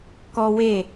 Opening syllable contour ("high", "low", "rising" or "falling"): high